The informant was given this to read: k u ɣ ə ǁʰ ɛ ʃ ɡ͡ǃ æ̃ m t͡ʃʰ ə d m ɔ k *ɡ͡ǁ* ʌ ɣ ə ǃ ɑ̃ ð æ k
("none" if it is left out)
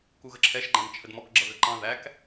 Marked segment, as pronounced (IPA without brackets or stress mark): ɡ͡ǁ